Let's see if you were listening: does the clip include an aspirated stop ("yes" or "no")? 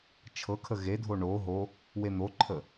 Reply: yes